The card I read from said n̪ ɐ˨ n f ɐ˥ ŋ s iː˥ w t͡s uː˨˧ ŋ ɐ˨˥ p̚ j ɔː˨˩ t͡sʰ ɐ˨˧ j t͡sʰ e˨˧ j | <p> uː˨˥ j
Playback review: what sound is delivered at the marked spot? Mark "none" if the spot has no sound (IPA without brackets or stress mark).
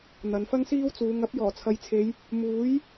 m